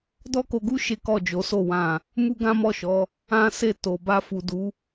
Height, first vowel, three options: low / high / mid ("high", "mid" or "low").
mid